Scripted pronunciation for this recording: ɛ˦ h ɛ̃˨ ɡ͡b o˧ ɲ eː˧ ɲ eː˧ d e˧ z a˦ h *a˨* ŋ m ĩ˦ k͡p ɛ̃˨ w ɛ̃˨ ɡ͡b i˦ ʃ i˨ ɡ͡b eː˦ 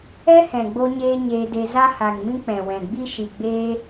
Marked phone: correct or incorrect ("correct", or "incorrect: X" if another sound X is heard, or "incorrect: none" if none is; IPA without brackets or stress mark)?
correct